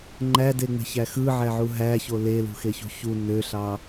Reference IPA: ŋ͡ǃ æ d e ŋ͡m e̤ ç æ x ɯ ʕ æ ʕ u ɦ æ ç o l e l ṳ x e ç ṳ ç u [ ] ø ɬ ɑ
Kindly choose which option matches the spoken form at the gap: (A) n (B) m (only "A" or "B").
A